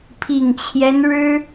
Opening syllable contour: low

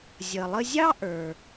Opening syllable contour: low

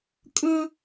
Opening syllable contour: high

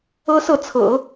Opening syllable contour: high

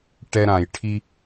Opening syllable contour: high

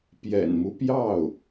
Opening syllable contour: low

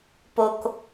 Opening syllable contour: low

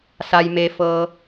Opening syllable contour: low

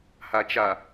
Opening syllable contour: low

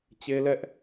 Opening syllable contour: high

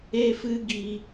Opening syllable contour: high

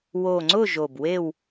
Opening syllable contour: low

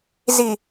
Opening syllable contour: low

